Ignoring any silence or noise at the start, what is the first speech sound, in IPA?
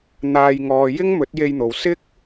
n̪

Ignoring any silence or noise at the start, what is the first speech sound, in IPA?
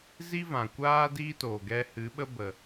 z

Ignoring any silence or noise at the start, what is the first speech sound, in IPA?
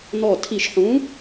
n̪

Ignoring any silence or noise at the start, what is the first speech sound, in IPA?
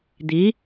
d̪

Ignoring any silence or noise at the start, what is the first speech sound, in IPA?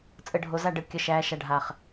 t͡sʼ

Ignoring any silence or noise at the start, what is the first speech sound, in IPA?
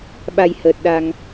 ɓ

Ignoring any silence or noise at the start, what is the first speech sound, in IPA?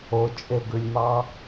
o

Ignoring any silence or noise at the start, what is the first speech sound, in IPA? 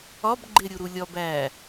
ɒ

